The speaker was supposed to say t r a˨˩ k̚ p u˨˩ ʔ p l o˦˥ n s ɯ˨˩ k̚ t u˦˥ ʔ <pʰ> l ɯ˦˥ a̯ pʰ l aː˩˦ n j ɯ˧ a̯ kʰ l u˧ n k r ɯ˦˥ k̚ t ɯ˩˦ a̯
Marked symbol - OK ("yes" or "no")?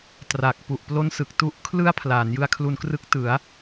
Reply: no